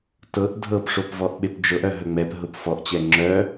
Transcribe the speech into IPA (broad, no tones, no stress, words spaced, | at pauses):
tɤʔ dʱɤpʂopvɔʔ ɓepd͡ʒɤʔœ ɦœŋ͡mɛp ɦʊpfɔʔ t͡ɕɛŋ͡ǁœ